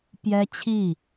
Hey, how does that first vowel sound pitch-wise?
high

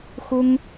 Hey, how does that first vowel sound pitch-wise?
high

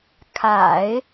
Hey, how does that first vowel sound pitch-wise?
low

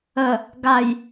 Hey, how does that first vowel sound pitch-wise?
low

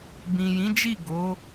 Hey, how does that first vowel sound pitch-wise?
low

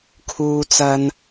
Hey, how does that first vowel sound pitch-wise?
high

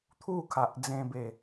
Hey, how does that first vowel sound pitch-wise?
falling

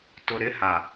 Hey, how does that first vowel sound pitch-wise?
low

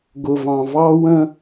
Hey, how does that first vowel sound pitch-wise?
low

